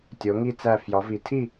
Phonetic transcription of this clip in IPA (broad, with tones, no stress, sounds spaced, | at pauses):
tʲ o˧˥ ŋ i˥˧ t͡s æ˥˧ f j ɒ˧˥ v i˧˥ tʰ i˥˧